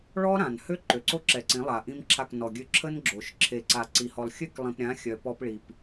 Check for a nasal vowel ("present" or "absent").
present